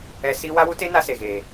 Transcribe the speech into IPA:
ɛ˧ s i˦ w a˦ w u˦ t e˦ n a˧ s e˨ ɣ eː˨

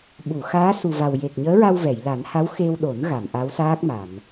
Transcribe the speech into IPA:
ɓ u˨˩˨ x aː˧˥ s u˨˩ v a˨˩ w j e˨˩ k̚ ɲ əː˧˥ ɹ a˧ w v ɛ˨˩˨ j l a˨˩˦ n h a˧˥ w x e˧ w ɗ o˨˩˦ n ɣ a˨˩˨ m ʔ a˧˥ w s aː˦˥ k̚ m a˨˩˨ m

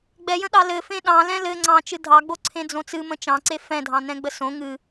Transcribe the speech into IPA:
ɡ͡b ɛ j ə̃ ɗ ɑ l ɘ f ẽ ɗ ɑ̃ l ɛ̃ l ɘ ŋ͡ǀ ɑ̃ t͡ʃ ɨ dʱ ɑ ɡ͡b o ǀʰ ẽ d͡z õ t͡s ɨ m ə̃ t͡ʃ ɑ̃ ǀ e f ɛ̃ dʱ ɑ̃ n ɛ̃ ɡ͡b ə s õ ŋ ɨ

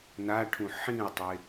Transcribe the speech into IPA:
n a ʈʰ ũ ħ ĩ ʊ̯ tˤ e

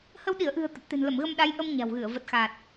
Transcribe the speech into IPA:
h ə˧ w ɗ i˧˩ ə̯ ʔ ɨ̤˨˩ ə̯ t̪ ə˨˩ p̚ t̪ e̤˨˩ n l ə˧˩ m ɣ ə˧ m ɗ a˨˦ j ʔ ə˧ m ɲ a̤˨˩ w ɣ ɨ˧˩ ə̯ v ə˨˩ t̚ x a˨˩ t̚

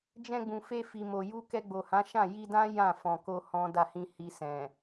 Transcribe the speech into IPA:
d͡ʒ ɛ̃˧ ɡ͡b ũ˨ f e˧ f i˨ m o˨ j u˧ k ɛ˧ ɡ͡b o˨ h ã˨˦ ʃ ã˦˨ j i˧ d ã˦ j ã˦˨ f ɔ̃˨ k o˧ h ɔ̃˦ d a˦˨ h ĩ˧ h i˧ s ɛ̃˨

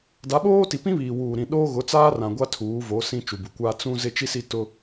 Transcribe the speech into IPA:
d a˨˦ ɓ oː˦ t i˨ p ĩ˦ β iː˨ w uː˨ ɾ ĩ˨ ɗ oː˦ ɣ ʊ˨˦ t͡s aː˦ r ã˨ ɡʷ a˦ tʰ uː˨˦ v o˨˦ s ĩ˦ t͡ʃ u˨ b u˨ kʷ aː˦ t͡s ũ˦ z ɪ˦ t͡ʃ i˦ s i˦ t ʊ˦

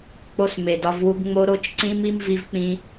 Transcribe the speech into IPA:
k͡p o˦ s m e˨ d ɒ˦ v w u˦ ɡ ŋ͡m o˦ ɾ o˦ t͡ʃ ǀ ĩ˦ m i˦ m v i˦ v k͡p ĩ˦

